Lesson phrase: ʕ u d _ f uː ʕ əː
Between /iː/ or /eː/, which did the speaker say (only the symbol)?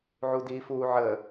iː